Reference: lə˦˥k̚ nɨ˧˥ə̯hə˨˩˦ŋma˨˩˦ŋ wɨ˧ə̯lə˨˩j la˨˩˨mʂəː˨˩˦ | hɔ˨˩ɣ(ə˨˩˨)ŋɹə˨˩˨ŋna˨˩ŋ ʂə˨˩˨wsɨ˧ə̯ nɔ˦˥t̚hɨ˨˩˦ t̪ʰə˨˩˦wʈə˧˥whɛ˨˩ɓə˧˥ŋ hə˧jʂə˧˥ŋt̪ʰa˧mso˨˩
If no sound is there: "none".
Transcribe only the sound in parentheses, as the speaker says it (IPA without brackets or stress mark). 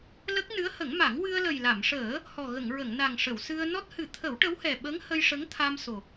ə˨˩˨